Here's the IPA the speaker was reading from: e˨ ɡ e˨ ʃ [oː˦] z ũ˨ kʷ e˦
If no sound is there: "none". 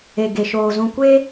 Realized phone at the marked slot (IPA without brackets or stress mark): oː˨